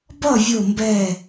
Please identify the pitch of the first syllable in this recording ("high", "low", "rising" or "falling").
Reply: falling